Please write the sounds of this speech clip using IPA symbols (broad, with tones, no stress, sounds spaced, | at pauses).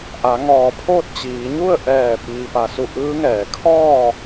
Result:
ʔ a˩˧ ŋ ɔː˧˩ pʰ oː˥˨ t̚ t͡ɕ iː˩˧ ɲ u˥˨ ə̯ ʔ ɛː˧˩ p iː˩ p a˩ s u˧˩ ʔ ɯː˧˥ ŋ ɛː˧˩ kʰ ɔː˥˨